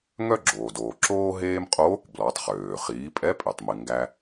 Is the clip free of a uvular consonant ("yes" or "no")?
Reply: no